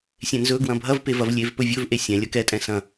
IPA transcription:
sʲ ẽ n z ɵ ɡ w ɐ̃ bʱ ɐ v p e v ɐ v lʲ e v p ɵ vʲ ɵ v ʔ e sʲ ɛ̃ lʲ ɐ k ɛ tʼ ɛ̃ s ɐ̃

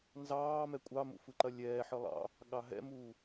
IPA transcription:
n z ɑː m ɛ kʷʼ ɑ m ṵ f ɯ ǃ ɐ lʲ ɛː ħ ɯ lˠ ɑ̰ | ɠ ɑ ɦ ɛ̰ m uː

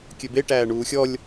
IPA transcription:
kʲ ø b e ʈ æː ɳ uː xʲ ɔ lʲ

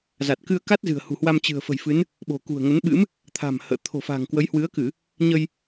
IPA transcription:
z a˨˩ t̚ k ɨ˧ ə̯ k a˦˥ t̚ z ɨ̤˨˩ ə̯ h ṳ˨˩ h w a˧ m t͡ɕ ɨ̤˨˩ ə̯ f ə̤˨˩ j f ɨ˨˦ n | ɓ o̤˨˩ k ṳ˨˩ ə̯ ŋ ə˨˦ n ɓ ɨ̰˧˥ m | t̪ʰ a̤˨˩ m h ə̰ː˧˨ t̪ʰ o̤˨˩ f a̤˨˩ ŋ k w ə˨˦ j h w ɨ˨˦ ə̯ k ɨ˧˩˨ | ɲ ə˧ j

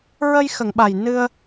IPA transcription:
ɹ ə˧ j x ə˨˩˨ ŋ ɓ a˨˩ j n ɨ˧ ə̯

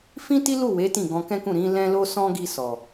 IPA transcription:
f ĩ˦ t i˦ l u˦˨ w e˨˦ t ĩ˦˨ ɡ ɔ̃˧ k ɛ̃˦ k ũ˦˨ ɾ ĩ˨˦ l ɛ̃˦ l o˦ s ɔ̃˦ ɡ i˧ s ɔ˨

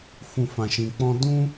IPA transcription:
f ũ˨ f ã˨ ʃ ĩ˨ k͡p ɔ̃˧ d ũ˦

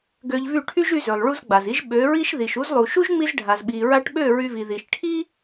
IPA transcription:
ɡ ø˧ ʎ v y˦˨ ʈʰ y˦ ʒ y˧ z ø˨ lˠ ɭ u˧ z ɡ͡b a˨ z i˦ ʒ ɓ ø˨˦ ɹ i˦ ʃ ð i˨ ʃ u˧ z lˠ u˨ ʃ u˦ ʒ ŋ͡m i˧ z ɖʱ a˨ z ɓ i˨ ɹ a˧ ʈ ɓ ø˦˨ ɹ y˧ v i˨ ð i˨ ʃ ʈʰ i˦

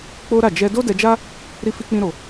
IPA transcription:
k͡p o˦ ɾ a˦˨ d͡ʒ ɛ˧ d o˦ d ɛ˧ d͡ʒ a˦ | ɾ i˦ f i˦ k͡p ĩ˦ ɾ o˧

